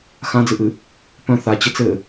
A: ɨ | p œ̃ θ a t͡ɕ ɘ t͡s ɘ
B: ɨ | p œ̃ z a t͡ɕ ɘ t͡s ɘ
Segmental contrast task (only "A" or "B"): A